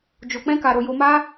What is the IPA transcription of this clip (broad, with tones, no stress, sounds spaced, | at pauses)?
d͡ʒ o˧ k͡p ɛ̃˦ k a˧ ɾ o˧ j o˧ m a˦